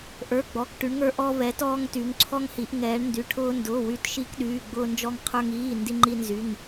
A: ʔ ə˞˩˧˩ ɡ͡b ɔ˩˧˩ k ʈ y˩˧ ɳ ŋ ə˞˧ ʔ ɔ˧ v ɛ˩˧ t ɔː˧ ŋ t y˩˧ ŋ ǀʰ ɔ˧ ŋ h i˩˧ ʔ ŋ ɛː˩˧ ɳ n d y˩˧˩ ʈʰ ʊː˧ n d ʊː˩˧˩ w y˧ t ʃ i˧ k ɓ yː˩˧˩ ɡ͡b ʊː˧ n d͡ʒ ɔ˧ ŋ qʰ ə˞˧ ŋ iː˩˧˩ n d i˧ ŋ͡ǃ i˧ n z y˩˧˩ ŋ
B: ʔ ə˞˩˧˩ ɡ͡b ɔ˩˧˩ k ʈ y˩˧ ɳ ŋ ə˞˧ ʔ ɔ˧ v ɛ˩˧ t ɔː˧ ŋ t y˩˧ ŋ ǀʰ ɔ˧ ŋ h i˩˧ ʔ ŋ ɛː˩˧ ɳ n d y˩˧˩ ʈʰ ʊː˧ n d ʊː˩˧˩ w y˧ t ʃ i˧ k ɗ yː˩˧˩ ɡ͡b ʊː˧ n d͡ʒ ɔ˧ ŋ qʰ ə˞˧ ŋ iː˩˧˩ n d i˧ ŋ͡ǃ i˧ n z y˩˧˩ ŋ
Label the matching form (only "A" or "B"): B